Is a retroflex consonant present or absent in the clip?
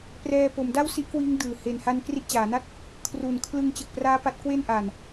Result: absent